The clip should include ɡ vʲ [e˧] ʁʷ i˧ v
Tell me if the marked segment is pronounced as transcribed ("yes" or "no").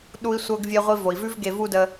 yes